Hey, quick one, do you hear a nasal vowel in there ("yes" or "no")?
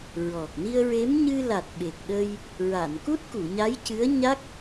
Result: no